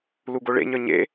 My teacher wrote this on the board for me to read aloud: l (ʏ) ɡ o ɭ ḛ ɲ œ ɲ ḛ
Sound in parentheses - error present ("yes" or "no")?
yes